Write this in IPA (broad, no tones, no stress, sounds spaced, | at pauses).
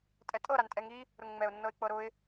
tʼ ɛ tʼ ɤ ɾ a n tʼ ɛ ŋ i | ɾ ʊ ŋ ŋ͡m ɛ ʊ̯ nː ɤ ɪ̯ k͡p ɤ ɾ ʊ ɪ̯